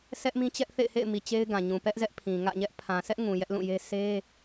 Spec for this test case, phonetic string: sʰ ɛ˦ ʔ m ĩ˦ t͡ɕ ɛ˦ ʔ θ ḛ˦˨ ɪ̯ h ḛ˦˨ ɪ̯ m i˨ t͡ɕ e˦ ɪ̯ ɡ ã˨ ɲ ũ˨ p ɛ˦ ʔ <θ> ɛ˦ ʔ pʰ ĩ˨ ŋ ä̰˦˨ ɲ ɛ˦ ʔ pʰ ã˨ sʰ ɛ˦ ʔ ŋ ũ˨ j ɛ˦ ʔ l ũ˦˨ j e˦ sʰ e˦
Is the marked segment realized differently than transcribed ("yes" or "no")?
yes